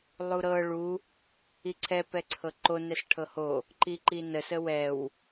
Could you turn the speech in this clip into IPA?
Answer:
lˠ u ɾ ɤ ɭ u | i ǀʰ ɛ p ɛ ǀʰ ɤ ǃ o n ɛ s ʈʰ ɤ h o | ǃ i ǃ i n ə s ə w ɛ w

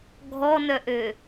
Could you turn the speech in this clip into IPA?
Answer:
ɡʱ ɔ n œ ʔ ø

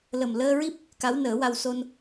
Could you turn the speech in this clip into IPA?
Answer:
l ə˨˩ m l əː˧ ɹ i˦˥ p̚ | k a˧˥ w n əː˨˩˦ w a˧ w s o˧ n

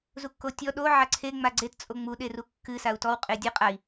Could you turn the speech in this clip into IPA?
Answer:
z u kː o tʲ ɔ ɗ o ʕ a ǀʰ e ŋ͡m a ɡ͡ǀ e t t͡sʼ o ŋ͡m u ɗ e r u kː ɨ s a u̯ t ɔ w qʼ e dʲ ɨ qʼ a i̯

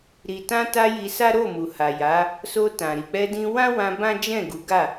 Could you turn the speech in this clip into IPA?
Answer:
ɾ i˨ t ã˧ t a˧ j i˧ s a˦ ɾ o˦˨ m u˨ h a˨ j a˨˦ | s o˧ t ã˨ ɾ i˨ k͡p ɛ˧ d ĩ˧ w ã˦ w ã˧ b ã˦ d͡ʒ ɛ̃˦˨ ɡ u˨˦ ɡ a˦˨

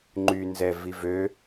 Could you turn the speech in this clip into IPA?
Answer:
ŋ͡ǃ y n z ɛ v i v ø

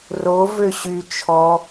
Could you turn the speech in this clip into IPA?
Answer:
r o v ø ɕ y t͡ʃʰ ɔ

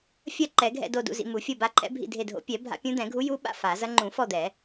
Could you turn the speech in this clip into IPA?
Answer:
fʲ ɐ˦˨ ǃ ɛ˨˩˦ ɡʱ ɛ̰˦˨ d o˦˨ d ṵ˦˨ z ḭ˦˨ m u˨˩˦ fʲ o˦˨ b a˧˥ ǃʰ ɛ̰˧˥ bʱ ḭ˦˨ dʱ e˦˨ dʱ o̰˧˥ pʲ ɛ˨˩˦ bʱ a̰˧˥ pʲ ũ˧˥ d̪ ɛ̃˨˩˦ ɡʱ u˧˥ j u˧˥ ɓ a̰˦˨ f a˨˩˦ z ɐ˧˥ ŋ͡ǃ ũ˨˩˦ f ɔ˦˨ d̪ ɛ˨˩˦

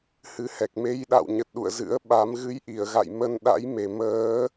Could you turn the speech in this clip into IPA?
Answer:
h ɨ˨˦ h ɛ˨˩ k̚ m e˧ j ɗ a̰˧˨ w ɲ ə˨˩ t̚ ɗ ṵ˧˨ ə̯ z ɨ̰˧˥ ə̯ ɓ a˨˦ m ɣ ɨ˨˦ j ʔ i˧˩ ə̯ ɣ a̰˧˨ j m ə˧ n ɗ a̰˧˥ j m e˨˩ m əː˨˦

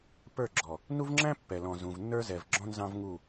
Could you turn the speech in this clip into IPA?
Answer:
p ə˞˦˨ ɡ͡ǁ ɔ˨ | n u˦ v ŋ͡ǁ æ̃˦ pː ɛ˨ l ɔ̃˨ z ũ˨ v nː ə˞˦ z ɛ˨ v ɡ͡ǁ ɔ̃˦ n z ɑ̃˦ v ŋ u˦˨

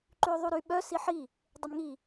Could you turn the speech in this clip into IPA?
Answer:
ǃ y o̯ ðˤ u ɾ y ɓ œ s i ħ i | dˤ ə m ŋ i

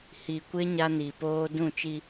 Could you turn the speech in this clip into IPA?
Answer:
h i˨ kʷ ɪ˦ ɲ a˦ n i˨ p oː˦ d ũ˦˨ t͡ʃ i˦

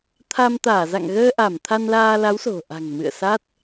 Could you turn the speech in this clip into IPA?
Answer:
t̪ʰ a˧ m t̪ aː˧˩ z a̰˧˨ ŋ ɣ əː˧ ʔ a˧˩ m t̪ʰ a˧ n l aː˧ l a˨˦ w s o̤˨˩ ʔ a̤˨˩ ŋ m ɨ̰˧˨ ə̯ s a˦˥ t̚

